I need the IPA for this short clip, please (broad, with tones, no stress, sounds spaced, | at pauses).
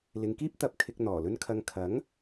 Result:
l ɪ˨˧ ŋ k iː˥ p̚ t̪ ɐ˨˥ p̚ kʰ ɪ˧ k̚ n̪ ɔː˨˩ l ɵ˥ n kʰ ɐ˧ ŋ kʰ ɐ˨˥ ŋ